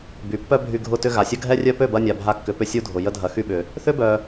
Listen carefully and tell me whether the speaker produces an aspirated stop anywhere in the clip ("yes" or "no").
no